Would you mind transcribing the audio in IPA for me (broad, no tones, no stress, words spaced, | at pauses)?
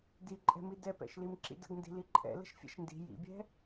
diǃʼɛ̤mi dɛpɛ̰ʃlim ǁḭdə̰ɡndi̤ liǃʼɛ̰ lə̤ʃfʲɛ̰ʃndi̤ jḭbʲɛ̤